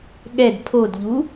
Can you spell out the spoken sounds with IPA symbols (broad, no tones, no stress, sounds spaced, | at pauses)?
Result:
ɠ ɛ d pʰ o d ʎ u